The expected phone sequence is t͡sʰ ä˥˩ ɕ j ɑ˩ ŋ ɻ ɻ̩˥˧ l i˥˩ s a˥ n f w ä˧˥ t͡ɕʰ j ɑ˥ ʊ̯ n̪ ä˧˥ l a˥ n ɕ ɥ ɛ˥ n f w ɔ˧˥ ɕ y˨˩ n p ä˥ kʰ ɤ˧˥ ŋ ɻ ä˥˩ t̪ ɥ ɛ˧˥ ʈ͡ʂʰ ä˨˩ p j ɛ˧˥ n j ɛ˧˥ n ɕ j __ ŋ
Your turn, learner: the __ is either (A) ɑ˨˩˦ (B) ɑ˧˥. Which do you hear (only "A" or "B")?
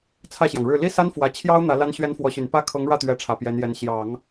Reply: A